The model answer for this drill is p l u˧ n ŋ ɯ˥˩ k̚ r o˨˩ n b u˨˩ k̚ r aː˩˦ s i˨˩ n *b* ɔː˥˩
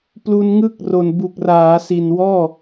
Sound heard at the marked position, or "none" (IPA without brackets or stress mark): w